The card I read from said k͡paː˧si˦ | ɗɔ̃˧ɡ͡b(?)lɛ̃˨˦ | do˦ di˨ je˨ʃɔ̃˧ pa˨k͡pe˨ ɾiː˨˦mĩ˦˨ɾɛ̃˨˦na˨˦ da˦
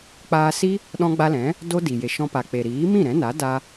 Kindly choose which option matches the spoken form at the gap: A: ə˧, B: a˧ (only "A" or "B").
B